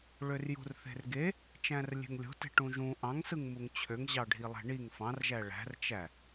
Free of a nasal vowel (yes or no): no